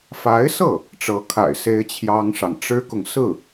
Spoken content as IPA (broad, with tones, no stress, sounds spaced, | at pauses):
f a˧˥ ɪ̯ s ɤ˥˩ | ʈ͡ʂ ɤ˧˥ kʰ a̰˨˩ ɪ̯ s e˥ ɪ̯ t͡ɕʰ j ɑ˥ ŋ ʂ ɑ˨ ŋ ʈ͡ʂ ɻ̩˥ k ʊ˨ ŋ s ɹ̩˥˩